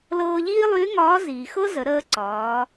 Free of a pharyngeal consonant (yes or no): yes